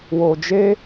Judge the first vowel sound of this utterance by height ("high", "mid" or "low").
mid